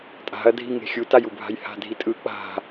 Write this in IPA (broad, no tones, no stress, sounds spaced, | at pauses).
tʼ a̤ ɐ̯ dʱ i ŋ e̤ xʲ u t a j u bʱ a̤ j h a̤ dʱ i tʼ ɯ k͡p a̤